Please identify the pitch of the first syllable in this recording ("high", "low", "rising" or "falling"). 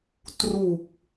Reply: low